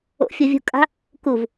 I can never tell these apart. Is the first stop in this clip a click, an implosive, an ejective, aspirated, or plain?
ejective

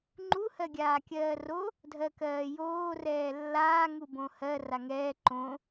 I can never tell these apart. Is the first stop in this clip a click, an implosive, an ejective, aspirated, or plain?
click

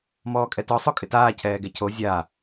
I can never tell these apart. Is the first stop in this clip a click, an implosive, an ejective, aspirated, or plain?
ejective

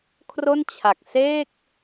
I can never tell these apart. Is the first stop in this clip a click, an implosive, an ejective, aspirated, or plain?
aspirated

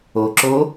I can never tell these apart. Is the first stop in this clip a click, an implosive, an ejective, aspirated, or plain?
click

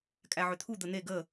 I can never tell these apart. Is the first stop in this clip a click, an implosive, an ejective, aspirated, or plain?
ejective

